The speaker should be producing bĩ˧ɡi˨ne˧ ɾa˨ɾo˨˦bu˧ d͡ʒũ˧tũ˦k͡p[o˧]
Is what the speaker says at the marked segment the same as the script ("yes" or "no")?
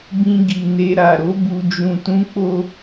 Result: no